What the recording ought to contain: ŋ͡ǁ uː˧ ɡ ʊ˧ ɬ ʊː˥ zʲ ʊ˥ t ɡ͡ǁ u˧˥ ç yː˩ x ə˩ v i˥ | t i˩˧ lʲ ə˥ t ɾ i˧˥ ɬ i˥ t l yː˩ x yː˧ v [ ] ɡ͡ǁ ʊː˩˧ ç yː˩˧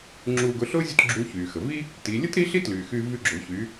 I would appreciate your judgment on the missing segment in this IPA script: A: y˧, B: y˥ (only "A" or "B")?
A